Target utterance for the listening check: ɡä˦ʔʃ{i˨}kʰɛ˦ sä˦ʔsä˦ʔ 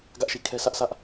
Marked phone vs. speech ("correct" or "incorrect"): correct